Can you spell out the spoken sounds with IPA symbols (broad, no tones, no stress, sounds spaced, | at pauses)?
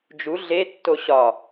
d͡ʒ u ɮ e tː o ɕ ɒ